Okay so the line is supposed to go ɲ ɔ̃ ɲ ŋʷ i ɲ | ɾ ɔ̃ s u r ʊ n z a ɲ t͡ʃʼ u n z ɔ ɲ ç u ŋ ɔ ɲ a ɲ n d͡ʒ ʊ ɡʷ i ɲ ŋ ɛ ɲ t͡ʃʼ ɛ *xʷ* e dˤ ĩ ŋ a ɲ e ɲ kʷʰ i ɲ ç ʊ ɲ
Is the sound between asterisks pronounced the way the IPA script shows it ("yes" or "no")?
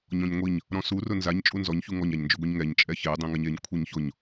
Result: no